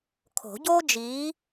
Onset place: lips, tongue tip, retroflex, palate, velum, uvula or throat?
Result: velum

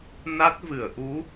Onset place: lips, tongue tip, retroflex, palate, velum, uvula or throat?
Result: tongue tip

